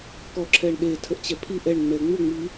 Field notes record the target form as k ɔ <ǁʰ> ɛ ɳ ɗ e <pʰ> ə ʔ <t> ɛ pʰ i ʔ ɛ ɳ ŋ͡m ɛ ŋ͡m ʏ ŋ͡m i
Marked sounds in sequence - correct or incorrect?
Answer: correct, incorrect: tʰ, incorrect: t͡ɕ

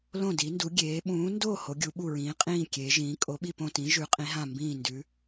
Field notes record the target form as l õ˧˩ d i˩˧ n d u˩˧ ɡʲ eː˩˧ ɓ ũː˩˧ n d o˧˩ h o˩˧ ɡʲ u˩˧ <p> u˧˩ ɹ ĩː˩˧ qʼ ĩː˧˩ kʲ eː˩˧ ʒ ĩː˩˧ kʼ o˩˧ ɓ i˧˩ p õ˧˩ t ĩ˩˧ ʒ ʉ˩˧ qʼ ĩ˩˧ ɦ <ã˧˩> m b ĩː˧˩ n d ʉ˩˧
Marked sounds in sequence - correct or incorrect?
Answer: incorrect: ɓ, correct

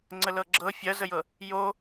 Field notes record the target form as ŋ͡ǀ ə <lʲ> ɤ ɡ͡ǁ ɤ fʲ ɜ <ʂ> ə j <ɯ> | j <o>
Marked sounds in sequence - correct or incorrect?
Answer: incorrect: l, incorrect: z, incorrect: ɤ, correct

